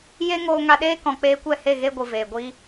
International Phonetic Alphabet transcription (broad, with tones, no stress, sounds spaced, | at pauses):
j e˦ ŋ oː˧ ŋ a˧ ɗ eː˦ k ɔ̃˨ k͡p eː˧ kʷ ɛ˦˨ h e˦˨ ɣ e˦ ɡʷ ɨ˨ v eː˨ ɡʷ i˦